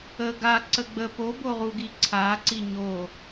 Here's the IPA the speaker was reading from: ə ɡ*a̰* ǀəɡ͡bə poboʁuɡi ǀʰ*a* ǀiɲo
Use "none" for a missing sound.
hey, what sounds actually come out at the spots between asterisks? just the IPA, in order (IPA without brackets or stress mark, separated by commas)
a, a